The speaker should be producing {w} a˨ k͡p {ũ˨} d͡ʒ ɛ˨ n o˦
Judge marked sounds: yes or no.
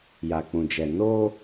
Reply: no, yes

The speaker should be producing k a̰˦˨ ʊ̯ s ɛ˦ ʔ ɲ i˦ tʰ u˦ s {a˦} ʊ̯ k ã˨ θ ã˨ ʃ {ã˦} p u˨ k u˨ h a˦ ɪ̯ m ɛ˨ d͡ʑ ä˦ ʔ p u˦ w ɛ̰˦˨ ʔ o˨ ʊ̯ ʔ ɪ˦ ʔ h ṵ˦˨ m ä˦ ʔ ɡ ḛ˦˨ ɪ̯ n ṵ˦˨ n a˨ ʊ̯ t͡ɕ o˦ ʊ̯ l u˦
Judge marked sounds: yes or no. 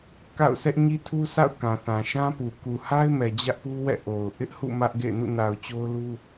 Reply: no, yes

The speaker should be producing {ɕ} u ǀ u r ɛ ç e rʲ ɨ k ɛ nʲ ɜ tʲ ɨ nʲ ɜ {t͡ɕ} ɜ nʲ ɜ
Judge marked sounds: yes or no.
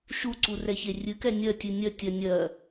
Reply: no, no

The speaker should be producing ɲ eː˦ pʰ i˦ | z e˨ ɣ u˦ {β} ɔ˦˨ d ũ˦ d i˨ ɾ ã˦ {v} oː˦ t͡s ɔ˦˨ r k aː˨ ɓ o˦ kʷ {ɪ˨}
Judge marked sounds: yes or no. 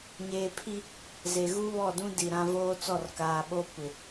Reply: yes, yes, yes

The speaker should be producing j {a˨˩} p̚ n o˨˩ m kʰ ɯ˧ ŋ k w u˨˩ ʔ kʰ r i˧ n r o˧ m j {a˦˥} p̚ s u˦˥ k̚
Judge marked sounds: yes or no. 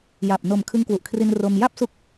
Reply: yes, no

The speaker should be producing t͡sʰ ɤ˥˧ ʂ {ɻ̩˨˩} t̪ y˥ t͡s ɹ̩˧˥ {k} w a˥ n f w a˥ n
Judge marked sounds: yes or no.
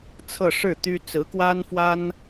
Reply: no, yes

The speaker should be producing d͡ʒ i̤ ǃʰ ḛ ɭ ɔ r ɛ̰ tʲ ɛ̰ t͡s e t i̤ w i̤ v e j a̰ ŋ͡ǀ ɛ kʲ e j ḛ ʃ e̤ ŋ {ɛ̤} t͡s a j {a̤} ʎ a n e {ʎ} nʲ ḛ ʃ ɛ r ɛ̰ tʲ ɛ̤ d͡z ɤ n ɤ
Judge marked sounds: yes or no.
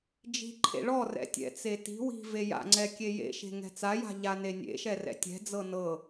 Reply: yes, yes, no

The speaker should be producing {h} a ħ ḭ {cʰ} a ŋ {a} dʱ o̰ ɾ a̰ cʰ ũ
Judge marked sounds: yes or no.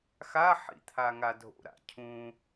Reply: no, no, yes

